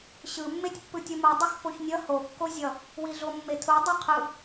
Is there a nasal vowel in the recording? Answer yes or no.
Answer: no